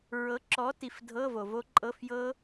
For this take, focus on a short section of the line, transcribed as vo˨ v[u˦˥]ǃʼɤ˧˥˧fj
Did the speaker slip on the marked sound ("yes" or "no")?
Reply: yes